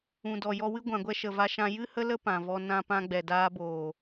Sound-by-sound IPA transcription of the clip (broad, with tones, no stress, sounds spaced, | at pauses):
ũ˨ d ɔ˨ j ɔ˧ w ɨ˦ ɡʷ ã˨ ɡʷ ɛ˧ ʃ ə˨ v a˧ ʃ ã˧ j ɨ˦ h ə˦ l ə˦ p ã˨ v ɔ˧ n ã˧ p ã˧ ɡ͡b ɛ˨ d aː˧ b oː˨